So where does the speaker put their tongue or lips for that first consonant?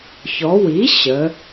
palate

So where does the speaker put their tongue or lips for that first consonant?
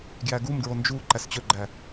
velum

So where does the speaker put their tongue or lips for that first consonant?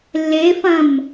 tongue tip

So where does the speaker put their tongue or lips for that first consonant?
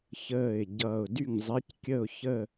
palate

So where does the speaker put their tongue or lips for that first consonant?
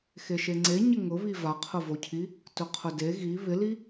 velum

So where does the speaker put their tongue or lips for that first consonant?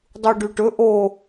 tongue tip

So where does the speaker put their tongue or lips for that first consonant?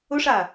retroflex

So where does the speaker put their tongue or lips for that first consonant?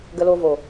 velum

